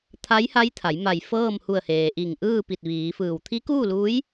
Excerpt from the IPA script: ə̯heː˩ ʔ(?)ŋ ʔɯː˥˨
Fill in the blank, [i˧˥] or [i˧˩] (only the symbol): i˧˩